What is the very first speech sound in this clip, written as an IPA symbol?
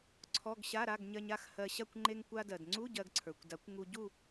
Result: ǀʰ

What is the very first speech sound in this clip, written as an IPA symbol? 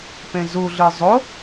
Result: p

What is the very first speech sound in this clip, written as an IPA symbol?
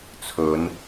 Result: t͡sʰ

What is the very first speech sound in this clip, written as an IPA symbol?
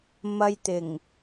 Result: m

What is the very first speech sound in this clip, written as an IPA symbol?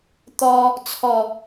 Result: t̪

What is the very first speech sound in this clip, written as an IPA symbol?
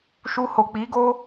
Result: ʃ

